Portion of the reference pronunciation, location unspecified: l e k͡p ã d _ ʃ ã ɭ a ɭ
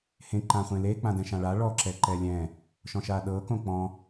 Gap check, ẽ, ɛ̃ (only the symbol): ɛ̃